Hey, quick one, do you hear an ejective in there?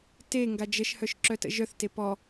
no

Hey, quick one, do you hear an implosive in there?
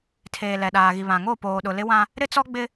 yes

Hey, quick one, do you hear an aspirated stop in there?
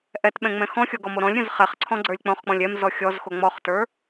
yes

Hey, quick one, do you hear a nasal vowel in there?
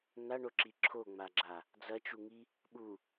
no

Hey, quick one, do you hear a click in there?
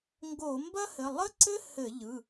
yes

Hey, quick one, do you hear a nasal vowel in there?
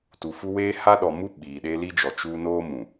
yes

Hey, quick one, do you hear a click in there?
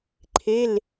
yes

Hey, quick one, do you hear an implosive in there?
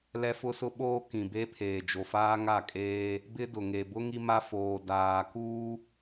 yes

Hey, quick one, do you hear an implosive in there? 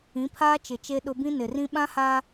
yes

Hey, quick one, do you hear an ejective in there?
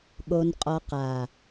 yes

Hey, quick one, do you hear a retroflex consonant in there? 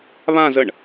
yes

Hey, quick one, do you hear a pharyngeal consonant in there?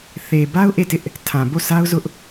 no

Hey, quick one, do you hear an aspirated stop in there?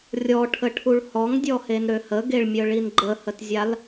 yes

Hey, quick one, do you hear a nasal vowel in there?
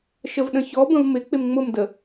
yes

